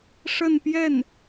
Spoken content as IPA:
ʂə˥˧npjɛ˥˩n

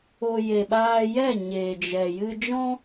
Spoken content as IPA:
o˨ je˨ɓaː˧jɛ˦˨ ɲeː˨d͡ʒɛ˨ jɨ˧d͡ʒɔ̃˦

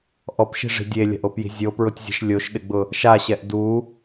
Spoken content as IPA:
ʔɔpʃi̤ʐi̤ dʲelʲa̤ʔopji̤ zʲopɹʊtʲzʲe̤ʃ lʲoʃɗɪɡ͡bʊ | ʃaɕɛʔ du

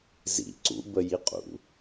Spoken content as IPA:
zḭ ǀṵ bəjiqʼṵ

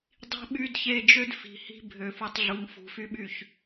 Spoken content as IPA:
dˤi̤˦ɓy˦dçe˦ d͡ʒø˦dfi̤˨hi̤˦ bʱø˨fu˨tˤɮu˨ŋ fṳ˨ fy˦ɓy˦˨ç

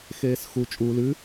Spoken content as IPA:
xeːsxu t͡ʃʼu lʉ

